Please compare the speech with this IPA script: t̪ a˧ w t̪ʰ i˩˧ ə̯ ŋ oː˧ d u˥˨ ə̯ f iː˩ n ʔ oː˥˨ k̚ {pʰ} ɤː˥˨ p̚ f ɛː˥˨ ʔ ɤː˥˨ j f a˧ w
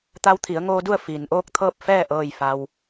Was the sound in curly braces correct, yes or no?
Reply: no